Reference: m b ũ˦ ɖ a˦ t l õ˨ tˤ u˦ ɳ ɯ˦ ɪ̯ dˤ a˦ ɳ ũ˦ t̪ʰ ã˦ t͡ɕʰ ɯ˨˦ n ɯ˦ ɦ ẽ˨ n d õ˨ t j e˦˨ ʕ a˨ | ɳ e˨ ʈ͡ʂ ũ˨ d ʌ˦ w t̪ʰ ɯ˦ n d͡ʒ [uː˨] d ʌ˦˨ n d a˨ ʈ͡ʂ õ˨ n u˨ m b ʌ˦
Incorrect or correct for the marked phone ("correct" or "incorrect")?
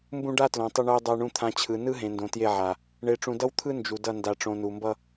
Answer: incorrect